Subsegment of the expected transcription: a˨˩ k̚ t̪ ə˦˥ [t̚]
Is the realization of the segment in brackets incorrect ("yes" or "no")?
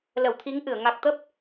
yes